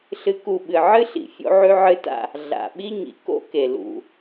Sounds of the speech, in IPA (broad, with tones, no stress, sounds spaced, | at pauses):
ɬ ɨ˦ k u˦˨ ɓ ɨ˨ ʕ ɨ˦ ɬ ḭ˨ fʲ o̰˦ ʕ ʉ˦ ʕ ɨ˦ t a̰˦ | ɮ a̰˨ ɓ i˦ ɲ ḭ˨ k o̰˦ k e˨ l ṵ˨